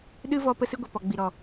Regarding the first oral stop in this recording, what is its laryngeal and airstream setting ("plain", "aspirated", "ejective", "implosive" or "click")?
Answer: implosive